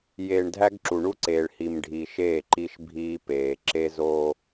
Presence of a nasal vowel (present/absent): absent